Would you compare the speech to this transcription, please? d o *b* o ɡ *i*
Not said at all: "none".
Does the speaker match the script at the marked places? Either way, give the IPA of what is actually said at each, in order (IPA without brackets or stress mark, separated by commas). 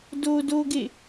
d, e